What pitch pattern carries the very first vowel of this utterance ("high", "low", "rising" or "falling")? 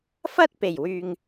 high